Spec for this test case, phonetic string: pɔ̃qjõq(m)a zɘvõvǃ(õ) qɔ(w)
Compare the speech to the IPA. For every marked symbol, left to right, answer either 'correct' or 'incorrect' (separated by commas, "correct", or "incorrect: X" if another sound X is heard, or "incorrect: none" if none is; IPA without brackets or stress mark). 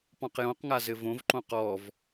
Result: incorrect: ŋ, correct, incorrect: v